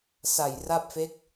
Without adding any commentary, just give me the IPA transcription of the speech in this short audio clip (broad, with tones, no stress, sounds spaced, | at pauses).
s a˨˩ j r a˥˩ p̚ f e˦˥ k̚